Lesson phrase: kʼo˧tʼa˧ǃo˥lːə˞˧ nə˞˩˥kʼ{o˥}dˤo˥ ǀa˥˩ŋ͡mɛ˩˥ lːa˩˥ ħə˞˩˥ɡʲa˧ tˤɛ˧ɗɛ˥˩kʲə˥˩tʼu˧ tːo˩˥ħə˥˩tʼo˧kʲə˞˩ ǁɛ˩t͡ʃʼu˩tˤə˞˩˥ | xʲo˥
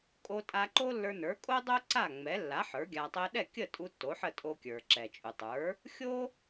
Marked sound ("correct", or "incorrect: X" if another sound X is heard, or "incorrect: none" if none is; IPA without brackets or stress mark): correct